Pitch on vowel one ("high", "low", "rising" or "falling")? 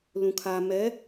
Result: low